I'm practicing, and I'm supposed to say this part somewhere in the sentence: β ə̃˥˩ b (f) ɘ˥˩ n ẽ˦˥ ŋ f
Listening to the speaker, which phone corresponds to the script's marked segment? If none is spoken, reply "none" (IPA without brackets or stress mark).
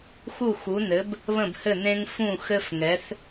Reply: h